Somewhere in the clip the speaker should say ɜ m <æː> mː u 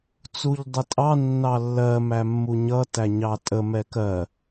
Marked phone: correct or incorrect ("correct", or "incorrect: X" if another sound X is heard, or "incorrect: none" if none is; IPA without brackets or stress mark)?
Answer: incorrect: æ